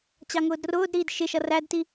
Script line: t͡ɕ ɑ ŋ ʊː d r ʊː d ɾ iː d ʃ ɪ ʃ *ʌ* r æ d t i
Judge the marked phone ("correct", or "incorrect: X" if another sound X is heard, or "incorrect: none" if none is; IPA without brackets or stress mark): correct